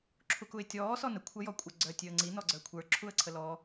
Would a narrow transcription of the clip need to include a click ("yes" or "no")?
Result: yes